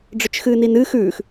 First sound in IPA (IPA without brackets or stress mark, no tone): ɖ͡ʐ